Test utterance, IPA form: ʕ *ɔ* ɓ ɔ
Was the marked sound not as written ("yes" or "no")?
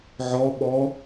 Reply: no